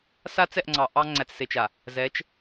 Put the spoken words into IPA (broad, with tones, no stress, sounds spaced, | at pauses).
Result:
s a˦ t͡s ɛ˦˨ ʔ ŋ͡ǀ ɑ˨ ʔ ɑ˦ ŋ͡ǀ æ˨ t͡s s e˨ t͡ʃ a˨ | z ɛ˨˦ t͡ʃ